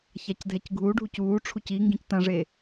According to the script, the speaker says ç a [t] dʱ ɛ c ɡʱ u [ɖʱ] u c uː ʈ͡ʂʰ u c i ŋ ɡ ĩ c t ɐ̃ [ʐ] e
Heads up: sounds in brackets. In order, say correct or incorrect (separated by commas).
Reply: incorrect, correct, correct